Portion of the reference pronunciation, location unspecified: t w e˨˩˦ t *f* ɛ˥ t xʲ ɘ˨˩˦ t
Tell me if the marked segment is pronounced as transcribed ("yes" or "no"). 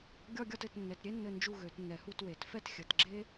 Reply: yes